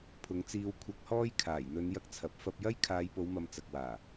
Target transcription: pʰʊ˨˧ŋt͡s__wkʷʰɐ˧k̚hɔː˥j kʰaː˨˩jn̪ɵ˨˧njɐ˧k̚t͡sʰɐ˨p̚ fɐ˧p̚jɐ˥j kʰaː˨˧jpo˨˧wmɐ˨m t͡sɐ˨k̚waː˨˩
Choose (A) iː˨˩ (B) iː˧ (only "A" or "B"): B